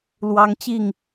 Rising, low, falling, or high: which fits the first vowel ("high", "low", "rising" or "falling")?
high